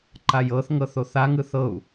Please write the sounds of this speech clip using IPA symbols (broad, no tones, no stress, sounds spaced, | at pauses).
ǃ a j ɤ θ ŋ ɤ θ o θ a ŋ ɯ θ ɤ u̯